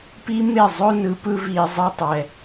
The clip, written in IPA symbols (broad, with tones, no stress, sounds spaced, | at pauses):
p i˦ m e˦˨ zˤ ɵ˦ n ɯ˧ p ɯ˦ v i˨ zˤ e˧ tˤ ɛ˨